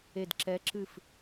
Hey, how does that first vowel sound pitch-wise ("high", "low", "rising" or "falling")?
falling